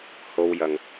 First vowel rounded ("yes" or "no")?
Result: yes